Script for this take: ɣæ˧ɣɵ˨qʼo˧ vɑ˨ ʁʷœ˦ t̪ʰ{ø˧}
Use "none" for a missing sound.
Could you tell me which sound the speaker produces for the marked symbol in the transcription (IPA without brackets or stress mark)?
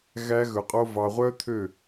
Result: ø˦˨